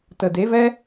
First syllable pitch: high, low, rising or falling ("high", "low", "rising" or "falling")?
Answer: low